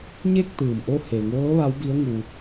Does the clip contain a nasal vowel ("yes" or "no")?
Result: no